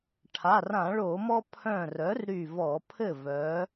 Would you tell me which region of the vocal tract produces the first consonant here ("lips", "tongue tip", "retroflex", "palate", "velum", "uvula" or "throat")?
retroflex